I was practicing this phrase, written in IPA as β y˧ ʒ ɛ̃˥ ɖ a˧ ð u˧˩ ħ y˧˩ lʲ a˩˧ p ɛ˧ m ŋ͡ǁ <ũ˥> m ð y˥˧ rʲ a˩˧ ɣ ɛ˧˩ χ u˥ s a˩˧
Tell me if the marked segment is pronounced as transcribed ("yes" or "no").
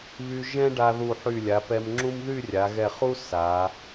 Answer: yes